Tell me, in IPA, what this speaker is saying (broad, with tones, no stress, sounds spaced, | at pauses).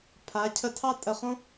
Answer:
pʰ a˩˧ cʰ ə˧˩ tʰ ɑ˥˧ tʼ ə˧˩ χ õ˥